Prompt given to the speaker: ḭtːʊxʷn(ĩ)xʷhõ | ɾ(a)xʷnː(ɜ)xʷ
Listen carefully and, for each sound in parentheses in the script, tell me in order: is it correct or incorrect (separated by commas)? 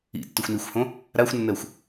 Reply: incorrect, correct, correct